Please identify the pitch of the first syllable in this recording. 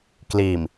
low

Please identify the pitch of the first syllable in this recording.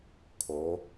rising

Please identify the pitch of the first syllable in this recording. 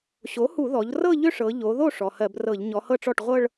rising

